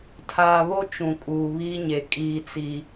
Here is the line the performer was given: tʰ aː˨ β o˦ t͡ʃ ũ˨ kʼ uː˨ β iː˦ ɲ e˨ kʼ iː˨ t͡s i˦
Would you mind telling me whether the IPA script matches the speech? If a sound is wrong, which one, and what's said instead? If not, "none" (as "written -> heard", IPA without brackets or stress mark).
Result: none